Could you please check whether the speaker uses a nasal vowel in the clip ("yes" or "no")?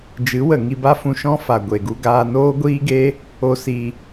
yes